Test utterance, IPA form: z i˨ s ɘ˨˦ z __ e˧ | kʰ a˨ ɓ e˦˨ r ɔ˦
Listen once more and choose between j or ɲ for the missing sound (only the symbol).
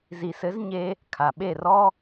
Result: ɲ